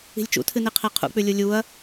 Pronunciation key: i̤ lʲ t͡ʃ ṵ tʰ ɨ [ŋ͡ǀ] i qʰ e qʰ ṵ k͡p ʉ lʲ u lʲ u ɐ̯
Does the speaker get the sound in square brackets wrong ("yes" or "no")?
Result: yes